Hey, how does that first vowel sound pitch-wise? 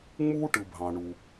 high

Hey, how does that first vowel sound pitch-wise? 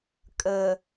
low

